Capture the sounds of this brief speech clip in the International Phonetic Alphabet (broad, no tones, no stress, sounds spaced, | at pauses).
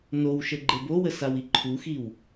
n o w ʃ ə ɡ͡ǃ e b o w ə s a w i ǃʰ u x i w